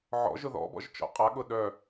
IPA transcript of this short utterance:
ʕ ɔ̰ ʒ ʊ ð ɔ̰ b ɔ̰ ʒ t͡ʃ ɔ̰ qʼ a ɠ ʊ ɗ œ

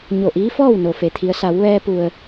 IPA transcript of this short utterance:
ɲ o˧˩ ʔ iː˧˥ f ɔː˥˨ w n o˩ f e˩ t̪ʰ i˩˧ ə̯ s a˩˧ w ʋ ɛː˧ p u˩ ə̯

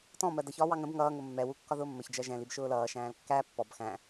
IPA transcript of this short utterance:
t ɔ̃ m ɜ d ʌ ç ɒː w ɑ ŋ ə̃ b ŋ ʌː ŋ ʊ mː ɛ w u kː ɒ ð ʊː mː ə ç d͡ʒ ɜ ʒ ɛ̃ l i b ʃ ʊː l ʌː ʃ æ̃ː l kː æ pː ɔ b x æ̃

